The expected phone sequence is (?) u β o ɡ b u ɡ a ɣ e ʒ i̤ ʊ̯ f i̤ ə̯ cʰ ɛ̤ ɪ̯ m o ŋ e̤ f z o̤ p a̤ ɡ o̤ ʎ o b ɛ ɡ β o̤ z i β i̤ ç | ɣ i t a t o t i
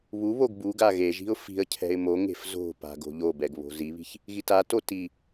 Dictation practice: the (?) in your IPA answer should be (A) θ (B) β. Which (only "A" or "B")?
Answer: B